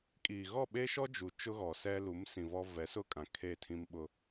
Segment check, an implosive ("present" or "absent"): present